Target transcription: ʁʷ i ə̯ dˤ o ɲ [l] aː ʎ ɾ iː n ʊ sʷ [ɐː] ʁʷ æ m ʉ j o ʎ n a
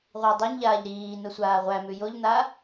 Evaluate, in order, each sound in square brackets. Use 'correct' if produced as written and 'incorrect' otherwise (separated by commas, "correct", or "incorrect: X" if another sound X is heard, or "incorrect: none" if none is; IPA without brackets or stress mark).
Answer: incorrect: ʎ, incorrect: aː